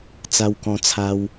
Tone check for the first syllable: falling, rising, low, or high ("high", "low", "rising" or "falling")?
high